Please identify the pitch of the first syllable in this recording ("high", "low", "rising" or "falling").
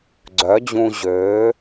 rising